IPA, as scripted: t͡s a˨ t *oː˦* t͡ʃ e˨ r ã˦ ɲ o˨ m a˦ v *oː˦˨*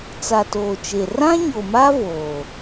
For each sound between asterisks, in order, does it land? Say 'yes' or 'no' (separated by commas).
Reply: no, no